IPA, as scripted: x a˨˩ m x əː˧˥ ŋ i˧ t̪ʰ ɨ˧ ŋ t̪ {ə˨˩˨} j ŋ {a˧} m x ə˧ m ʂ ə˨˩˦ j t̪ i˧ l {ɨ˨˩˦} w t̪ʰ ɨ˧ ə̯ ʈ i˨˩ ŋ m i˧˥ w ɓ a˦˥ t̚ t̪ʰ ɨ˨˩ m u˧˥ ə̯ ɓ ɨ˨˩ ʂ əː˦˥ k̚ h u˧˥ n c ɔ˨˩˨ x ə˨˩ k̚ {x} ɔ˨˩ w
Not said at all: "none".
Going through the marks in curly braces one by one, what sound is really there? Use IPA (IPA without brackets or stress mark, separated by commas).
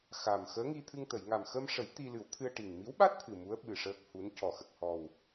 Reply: ə˨˩˨, a˨˩, ɨ˨˩˦, h